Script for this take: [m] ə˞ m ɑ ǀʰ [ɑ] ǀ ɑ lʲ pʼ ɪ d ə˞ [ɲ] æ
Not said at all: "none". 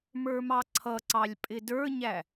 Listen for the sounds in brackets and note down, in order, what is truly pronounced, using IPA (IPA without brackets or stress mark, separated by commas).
m, ʌ, ɲ